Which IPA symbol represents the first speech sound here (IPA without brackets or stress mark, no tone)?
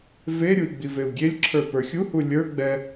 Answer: v